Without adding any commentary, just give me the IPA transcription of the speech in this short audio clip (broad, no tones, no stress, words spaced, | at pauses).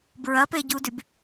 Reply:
bɹɐpeɟudyb